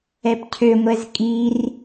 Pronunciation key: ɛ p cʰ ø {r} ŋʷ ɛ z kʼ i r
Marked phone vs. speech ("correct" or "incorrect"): incorrect